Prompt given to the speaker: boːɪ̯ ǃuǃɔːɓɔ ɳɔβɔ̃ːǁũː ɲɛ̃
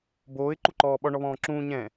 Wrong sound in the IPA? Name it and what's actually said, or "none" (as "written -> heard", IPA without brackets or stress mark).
none